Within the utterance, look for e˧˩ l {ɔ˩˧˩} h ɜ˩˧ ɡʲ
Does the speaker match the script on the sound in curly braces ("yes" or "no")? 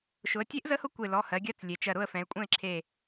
yes